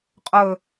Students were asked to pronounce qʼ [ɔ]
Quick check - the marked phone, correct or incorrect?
incorrect